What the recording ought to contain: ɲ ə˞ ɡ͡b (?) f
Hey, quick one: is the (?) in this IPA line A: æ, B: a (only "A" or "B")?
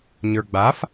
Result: B